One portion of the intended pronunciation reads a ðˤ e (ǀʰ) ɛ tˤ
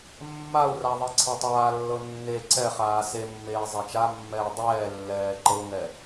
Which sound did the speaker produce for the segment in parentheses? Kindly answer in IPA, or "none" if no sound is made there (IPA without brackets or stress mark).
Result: ǀʰ